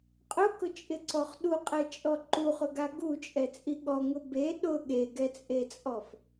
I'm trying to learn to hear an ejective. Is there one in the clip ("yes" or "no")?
yes